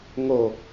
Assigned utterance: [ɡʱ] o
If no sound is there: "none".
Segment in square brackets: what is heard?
ŋ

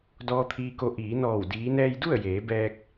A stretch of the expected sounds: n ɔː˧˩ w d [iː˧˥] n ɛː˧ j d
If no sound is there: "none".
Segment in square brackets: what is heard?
iː˧˥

